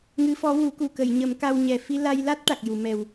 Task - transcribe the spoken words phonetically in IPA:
ŋ ɨ˧˥ f ɔ˧˥ w u˨˩˦ k u˨˩ k ə˨˩˨ j ɲ ə˨˩˦ m k a˧ w ɲ ɛ˨˩ f i˧ l a˧ j l a˦˥ t̚ ʈ a˨˩ k̚ j u˨˩˨ m ɛ˨˩ w

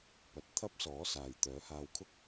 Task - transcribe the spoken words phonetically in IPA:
p ɐ˨ t̚ t̪ʰ ɐ˥ p̚ s ɔː˨˥ s aː˨ j t̪ œː˨˥ h aː˧ w kʰ ʊ˥ k̚

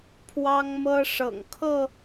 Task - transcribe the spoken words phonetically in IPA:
pʰ w ɑ˦ ŋ m ɤ˦ ʂ ɤ̰˨˩ ŋ kʰ ɤ˥˨

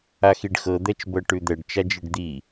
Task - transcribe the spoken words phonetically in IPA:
a x i ɖ x ɤ d̪ ɛ t͡ʃ b ɤ ʈ ʉ d̪ ɛ ɖ t͡ʃ a d͡ʒ i ɖ d̪ i

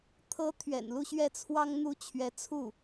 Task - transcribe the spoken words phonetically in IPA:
t̪ʰ ɤ˧˥ t̪ʰ ɥ ɛ̰˨˩ n l u˥˧ ɕ ɥ ɛ˥˩ t͡sʰ w ɑ˥ ŋ n̪ u˥ t͡ɕʰ ɥ ɛ˧˥ t͡sʰ u˥˩

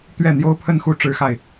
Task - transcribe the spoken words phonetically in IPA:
t̪ ɥ ɛ˥˩ n̪ j o˥ ʊ̯ pʰ ə˥˧ n x u˥˩ ʈ͡ʂ ɻ̩˥ x a˨ ɪ̯

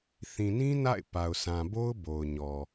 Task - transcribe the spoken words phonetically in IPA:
θ ĩ˨ n ĩ˦ n a̰˦˨ ɪ̯ p a˨ ʊ̯ s ã˨ b o˦ ʊ̯ b o˨ ʊ̯ ɲ ɔ˨

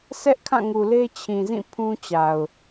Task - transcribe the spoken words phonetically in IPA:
s ɛ˦ ʔ kʰ ã˦˨ ŋ u˨ l e˦ t͡ɕʰ ĩ˨ z ĩ˦˨ pʰ ũ˦ t͡ɕ a˨ ʊ̯

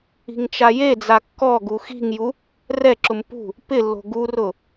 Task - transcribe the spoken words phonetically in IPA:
i̤ ŋ t͡ʃ a j e d͡z a kː ɔ ɡ u x i̤ ŋ j u | r ɛ ǁ ʊ m p ṳ | p ɪ lː o̤ ɡ u r ʊ

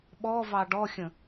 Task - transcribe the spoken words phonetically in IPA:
ɓ ɔ v ɑ ɖ ɔ xʲ ə̃

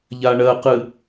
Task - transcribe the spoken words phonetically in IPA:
ʎ a ɳ ɜ q ɨ

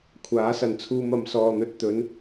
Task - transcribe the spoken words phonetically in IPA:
kʷʰ aː˨˥ s ɐ˨ n t͡sʰ uː˧ m ɐ˨˧ m s ɔː˧ n̪ ɵ˧ t̚ t̪ ɵ˨˧ n

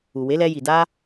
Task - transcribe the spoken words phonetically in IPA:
u˨ w e˨˦ l ɛ˧ j i˨ d a˧

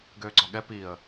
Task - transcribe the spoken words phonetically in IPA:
ɡ øː ɡ͡ǀ ɒ ɠ ɛ p i ə̯

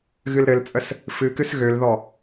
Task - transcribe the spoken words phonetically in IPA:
ɣ ɨ l ɾ ɘ l t͡sʼ ə s | f ɨ k ɨ s ɣ ø l ð ɔ

